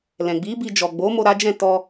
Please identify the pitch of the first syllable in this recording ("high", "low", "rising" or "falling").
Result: low